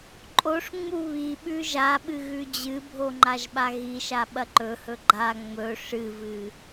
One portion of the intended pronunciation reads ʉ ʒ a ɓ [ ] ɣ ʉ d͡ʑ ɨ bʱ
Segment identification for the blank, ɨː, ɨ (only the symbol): ɨ